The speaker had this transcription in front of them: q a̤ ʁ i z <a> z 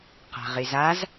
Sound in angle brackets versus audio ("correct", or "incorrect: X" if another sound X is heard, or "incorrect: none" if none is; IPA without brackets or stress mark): correct